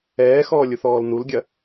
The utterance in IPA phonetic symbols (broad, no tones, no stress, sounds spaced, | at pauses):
ɛː x ɔː lʲ u θ ɔː l n u l ɡʲ ɐ